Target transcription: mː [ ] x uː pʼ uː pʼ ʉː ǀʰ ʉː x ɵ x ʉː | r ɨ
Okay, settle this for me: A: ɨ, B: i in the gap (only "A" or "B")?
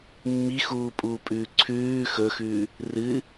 B